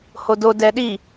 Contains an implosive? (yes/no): yes